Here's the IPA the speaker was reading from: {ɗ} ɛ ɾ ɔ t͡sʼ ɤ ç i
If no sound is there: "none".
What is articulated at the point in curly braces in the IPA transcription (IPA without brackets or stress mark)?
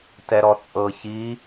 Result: t